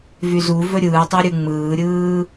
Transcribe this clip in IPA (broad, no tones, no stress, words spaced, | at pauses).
vyzuvɵ ɾʲɯːtˤo ɾʲɯŋ͡mɯːɾʲɯː